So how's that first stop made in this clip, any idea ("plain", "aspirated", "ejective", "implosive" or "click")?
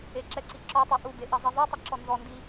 click